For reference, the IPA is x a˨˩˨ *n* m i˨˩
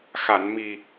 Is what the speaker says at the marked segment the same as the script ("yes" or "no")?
yes